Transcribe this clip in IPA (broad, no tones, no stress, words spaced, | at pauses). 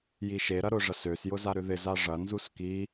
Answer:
jiʃeɾɐ ɾʊʐɐsøsjʊ zaɾʏðɪza ʐɐnzus ki